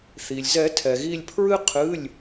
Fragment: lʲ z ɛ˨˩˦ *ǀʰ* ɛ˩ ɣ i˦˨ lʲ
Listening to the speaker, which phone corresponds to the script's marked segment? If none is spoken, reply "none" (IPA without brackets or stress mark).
tʰ